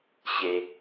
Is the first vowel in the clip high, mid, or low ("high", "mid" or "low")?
mid